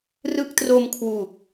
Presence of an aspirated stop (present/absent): present